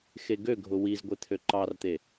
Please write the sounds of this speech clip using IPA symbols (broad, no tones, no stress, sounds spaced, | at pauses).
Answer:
x e ɡ ø ɡʱ ʊ w i z ɡʷ e t̪ʰ ø ǃ ɑ r t̪ e